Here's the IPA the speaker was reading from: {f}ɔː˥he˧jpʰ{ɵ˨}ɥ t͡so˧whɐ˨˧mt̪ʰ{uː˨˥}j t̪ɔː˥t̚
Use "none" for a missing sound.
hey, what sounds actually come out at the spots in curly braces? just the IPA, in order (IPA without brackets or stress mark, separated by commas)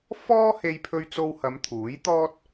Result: f, ɵ˧, uː˨˥